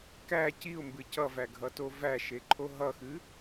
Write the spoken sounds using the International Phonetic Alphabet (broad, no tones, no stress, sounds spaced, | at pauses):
k æ c i ʊ̯ m b ɨ c ʌ v æ ɡʱ ʌ t o v æ ʃ e ǃʰ o ɦ ʌ x ɨ